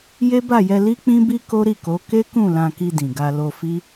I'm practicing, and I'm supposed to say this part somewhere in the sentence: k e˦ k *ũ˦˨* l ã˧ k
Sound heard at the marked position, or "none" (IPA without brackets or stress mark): ũ˦˨